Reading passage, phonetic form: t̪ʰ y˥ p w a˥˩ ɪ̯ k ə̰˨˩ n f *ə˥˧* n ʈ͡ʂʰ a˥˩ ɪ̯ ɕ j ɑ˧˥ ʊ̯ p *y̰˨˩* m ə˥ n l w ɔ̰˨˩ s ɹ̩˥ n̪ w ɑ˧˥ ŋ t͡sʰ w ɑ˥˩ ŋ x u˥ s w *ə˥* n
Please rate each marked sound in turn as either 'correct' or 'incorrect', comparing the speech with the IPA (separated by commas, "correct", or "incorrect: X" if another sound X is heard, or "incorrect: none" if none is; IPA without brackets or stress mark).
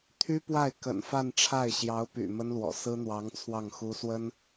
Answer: incorrect: a˥˧, correct, correct